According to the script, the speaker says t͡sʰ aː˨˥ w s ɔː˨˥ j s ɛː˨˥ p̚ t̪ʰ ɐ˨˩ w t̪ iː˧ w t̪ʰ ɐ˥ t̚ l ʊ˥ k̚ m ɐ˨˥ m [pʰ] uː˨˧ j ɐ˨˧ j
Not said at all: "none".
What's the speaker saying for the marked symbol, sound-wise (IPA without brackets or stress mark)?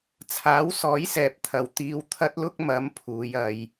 pʰ